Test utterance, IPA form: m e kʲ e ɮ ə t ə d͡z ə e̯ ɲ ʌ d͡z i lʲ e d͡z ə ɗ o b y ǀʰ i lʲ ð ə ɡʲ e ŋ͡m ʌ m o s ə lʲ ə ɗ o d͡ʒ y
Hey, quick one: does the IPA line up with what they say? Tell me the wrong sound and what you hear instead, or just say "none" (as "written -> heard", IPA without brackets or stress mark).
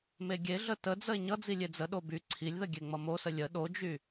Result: kʲ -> ɡʲ